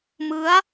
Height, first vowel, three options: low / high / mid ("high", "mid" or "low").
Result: high